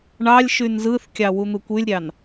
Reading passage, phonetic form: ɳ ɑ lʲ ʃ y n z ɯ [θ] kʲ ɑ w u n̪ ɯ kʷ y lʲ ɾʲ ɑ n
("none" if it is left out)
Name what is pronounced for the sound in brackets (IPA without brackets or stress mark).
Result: θ